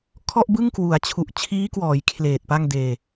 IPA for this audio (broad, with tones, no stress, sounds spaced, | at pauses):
kʰ ɔ˥˩ ʔ b ɯ˥˩ ŋ k w u˩˦ a̯ t͡ɕʰ u˨˩ ʔ t͡ɕʰ iː˦˥ k w ɔː˩˦ j kʰ l eː˨˩ t̚ p a˥˩ ŋ d eː˧